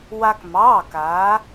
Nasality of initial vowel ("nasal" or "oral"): oral